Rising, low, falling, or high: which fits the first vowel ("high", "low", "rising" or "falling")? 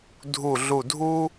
low